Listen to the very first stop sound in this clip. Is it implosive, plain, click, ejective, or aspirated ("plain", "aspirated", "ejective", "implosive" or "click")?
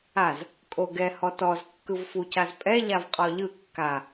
ejective